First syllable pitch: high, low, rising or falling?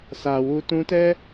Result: low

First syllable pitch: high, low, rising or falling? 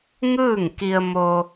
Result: falling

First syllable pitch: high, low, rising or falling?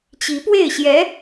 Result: rising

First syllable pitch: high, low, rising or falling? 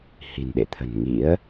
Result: low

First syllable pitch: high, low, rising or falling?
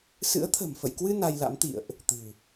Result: rising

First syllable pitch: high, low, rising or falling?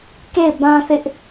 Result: falling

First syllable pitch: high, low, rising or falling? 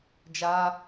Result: high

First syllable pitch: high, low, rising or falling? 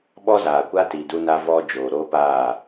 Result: high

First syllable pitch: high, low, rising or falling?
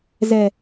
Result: low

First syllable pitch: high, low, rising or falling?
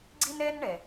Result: high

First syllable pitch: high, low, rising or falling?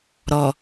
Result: low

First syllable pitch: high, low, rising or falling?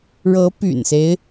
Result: rising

